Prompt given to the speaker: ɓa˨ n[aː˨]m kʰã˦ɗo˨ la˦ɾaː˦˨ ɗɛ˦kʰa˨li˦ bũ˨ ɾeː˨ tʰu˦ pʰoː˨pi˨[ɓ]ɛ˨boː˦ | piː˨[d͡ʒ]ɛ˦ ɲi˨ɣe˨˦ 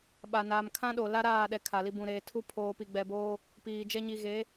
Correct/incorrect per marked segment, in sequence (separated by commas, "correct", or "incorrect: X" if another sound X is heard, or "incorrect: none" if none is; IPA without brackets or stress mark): correct, incorrect: ɡ͡b, correct